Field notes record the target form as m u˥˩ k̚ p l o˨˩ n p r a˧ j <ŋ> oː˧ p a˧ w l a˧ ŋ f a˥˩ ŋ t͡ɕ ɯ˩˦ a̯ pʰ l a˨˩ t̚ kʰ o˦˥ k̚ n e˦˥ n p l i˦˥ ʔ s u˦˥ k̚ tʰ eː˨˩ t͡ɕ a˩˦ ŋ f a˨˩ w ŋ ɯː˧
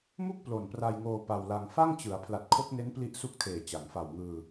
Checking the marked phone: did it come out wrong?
no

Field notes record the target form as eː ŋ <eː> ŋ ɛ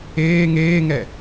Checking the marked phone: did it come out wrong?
no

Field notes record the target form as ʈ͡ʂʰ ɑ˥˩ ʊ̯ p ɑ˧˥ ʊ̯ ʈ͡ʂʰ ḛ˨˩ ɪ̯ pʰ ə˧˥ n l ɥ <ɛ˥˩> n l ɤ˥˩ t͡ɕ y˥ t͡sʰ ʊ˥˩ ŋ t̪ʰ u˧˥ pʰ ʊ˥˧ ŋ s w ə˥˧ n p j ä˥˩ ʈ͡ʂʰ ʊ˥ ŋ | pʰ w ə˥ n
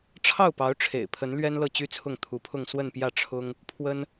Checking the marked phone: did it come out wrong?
yes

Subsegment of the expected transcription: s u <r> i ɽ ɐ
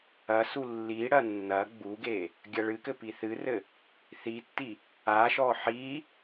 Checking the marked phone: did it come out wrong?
yes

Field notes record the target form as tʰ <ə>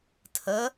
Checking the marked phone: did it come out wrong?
no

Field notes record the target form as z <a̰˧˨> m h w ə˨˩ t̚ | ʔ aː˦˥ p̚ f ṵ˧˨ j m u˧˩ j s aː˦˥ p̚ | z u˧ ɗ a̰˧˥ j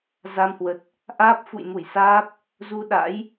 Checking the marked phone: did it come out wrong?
yes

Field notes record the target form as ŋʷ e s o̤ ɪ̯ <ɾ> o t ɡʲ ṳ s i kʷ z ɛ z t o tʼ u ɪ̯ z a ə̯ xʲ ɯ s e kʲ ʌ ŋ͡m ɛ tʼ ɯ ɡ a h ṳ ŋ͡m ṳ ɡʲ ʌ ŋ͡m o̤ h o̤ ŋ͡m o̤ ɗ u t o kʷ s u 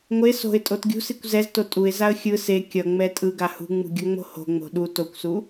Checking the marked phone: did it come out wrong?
yes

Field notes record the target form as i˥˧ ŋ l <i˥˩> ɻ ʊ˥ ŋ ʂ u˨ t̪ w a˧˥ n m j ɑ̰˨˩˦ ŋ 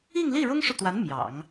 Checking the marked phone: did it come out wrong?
no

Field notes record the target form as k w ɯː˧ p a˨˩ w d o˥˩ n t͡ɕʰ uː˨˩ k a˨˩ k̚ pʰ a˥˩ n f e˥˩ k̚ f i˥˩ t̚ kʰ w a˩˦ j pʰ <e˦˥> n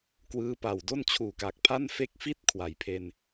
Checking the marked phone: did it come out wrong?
yes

